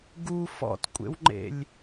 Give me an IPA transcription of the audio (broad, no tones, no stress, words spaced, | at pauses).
ɡu fɔ̰tkʷʼḛwŋ͡ǃḛlʲ